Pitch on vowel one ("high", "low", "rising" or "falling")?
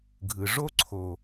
low